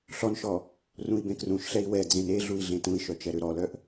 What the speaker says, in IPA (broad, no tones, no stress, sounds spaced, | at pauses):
ɬ ɔ n ʃ ɔ | r ũ i̯ b ẽ k r ũ ʃ ɬ ɛ i̯ w ɛ d͡z ẽ n e ɮ u i̯ ɮ ẽ t ũ i̯ ʃ œ t͡ʃ ɛ ɾ ø ɾ ɔ l œ ʔ